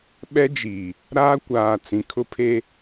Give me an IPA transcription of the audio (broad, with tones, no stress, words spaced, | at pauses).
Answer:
ɓɛ˦d͡ʒi˨ | ɾaː˦kʷaː˨t͡sĩ˨ kʰʊ˦pʰe˦